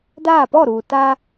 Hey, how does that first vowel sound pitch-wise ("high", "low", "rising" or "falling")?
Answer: falling